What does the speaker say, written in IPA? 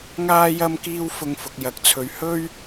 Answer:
ŋaː˥ jɐ˥mkiː˥wfʊ˧ŋfʊ˨k̚ jɐ˨k̚t͡sʰɵ˨ɥhɵ˥ɥ

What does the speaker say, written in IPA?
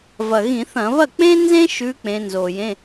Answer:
vɐ˨˩ɣĩ˧˩˧θɐ̃˧˩˧ βɐ˥˩k͡pẽ˥ nzẽ˥ʃʉ˨˦ k͡pẽ˨˦nzo˨˩jẽ˧˥˧

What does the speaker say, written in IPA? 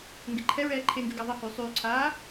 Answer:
ŋɡeǃʰɛɹɛː ǃʰeŋɡy ɡaðˤɛhyː sˤyːǀʰaː

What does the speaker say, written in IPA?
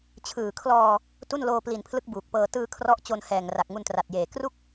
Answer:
t͡ɕʰɯː˨˩kʰlɔː˧ | tu˥˩nloː˧pli˨˩npʰlɯ˦˥k̚ buː˨˩k̚pɤː˧ tɯː˧ kʰrɔ˦˥ʔ t͡ɕo˧nhɛː˨˩ŋ ra˨˩k̚ŋu˧ntra˨˩t̚jeː˨˩ kru˥˩k̚

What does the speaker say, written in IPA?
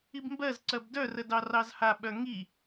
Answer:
ibmbɜzǀɜb dœrə dɑrɑzhaɓœ ŋi

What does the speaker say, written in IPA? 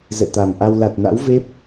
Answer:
zɛ̰˧˨t̪a˨˩mʔa˧w la˨˩t̚na̰˧˥wve˦˥p̚

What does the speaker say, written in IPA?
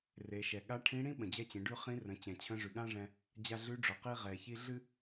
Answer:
re˩˧ʃɛ˩ ɠa˧˥ʈʰĩ˧˥ɽĩ˥ ɓə̃˩d͡ʑɛ˧t͡ɕẽ˩˧ɖʉ˧ χĩ˧˥rə̃˩˧ t͡ɕɛ̃˩t͡ɕʰə̃˧˥ ʐʉ˩ɠã˥ʐɛ̃˧ | d͡ʑa˧ɮʉ˧˥ɖ͡ʐʊ˩ qi˧ʁɛ˩çi˧ ɮɨ˥

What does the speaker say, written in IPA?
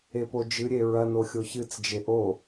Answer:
epod͡ʒɨɾʲe ɹɐno xʲoçɨt͡sd͡ʒe ʔo

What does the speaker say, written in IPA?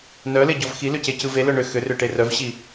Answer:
nœleɟɔv xilʏcecɯ velœ ɳʏ xʏrʏʈe rœvɕi

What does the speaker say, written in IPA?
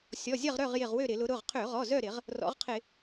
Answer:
sʲɔ˩˧˩zʲɐ˥˨ʁɾœ˥˨ʁjɪ˧˩ʁ wø˥˨ɾɪ˧˩˧lʊ˨˦ ɾʊ˩˧˩ʁ qʰø˧˩˧ʁɔ˩˧˩ zœ˥˨ɾɪ˧˩˧ʁ | rɔ̰˨˦ʁqʰɪ˧˩˧

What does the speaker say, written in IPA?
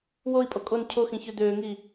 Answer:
woi̯pʼo kʼon cʰoxĩ çød̪øːŋiː

